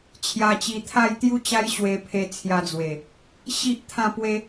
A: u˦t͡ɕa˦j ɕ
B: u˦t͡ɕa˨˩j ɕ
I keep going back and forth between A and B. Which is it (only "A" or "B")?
A